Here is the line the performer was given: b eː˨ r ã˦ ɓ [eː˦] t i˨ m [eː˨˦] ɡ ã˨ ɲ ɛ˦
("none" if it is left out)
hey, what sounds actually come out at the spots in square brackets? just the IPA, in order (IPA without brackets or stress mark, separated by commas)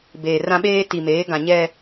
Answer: eː˦, eː˨˦